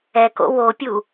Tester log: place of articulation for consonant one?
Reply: velar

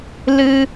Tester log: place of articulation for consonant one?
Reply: alveolar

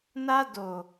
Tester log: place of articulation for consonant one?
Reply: alveolar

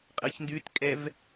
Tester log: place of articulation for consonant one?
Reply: uvular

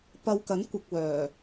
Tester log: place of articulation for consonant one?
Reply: labial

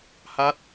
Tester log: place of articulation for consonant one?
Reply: glottal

